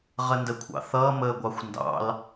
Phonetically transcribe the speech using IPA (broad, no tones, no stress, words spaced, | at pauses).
ʁəndəkʷʰɑ̰θʌː məːɡʷɑxʷndɑ̰l